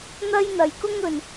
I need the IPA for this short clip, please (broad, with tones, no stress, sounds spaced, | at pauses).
n̪ ɐ˥ j n̪ ɐ˨ j k ʊ˥ ŋ ɵ˨ n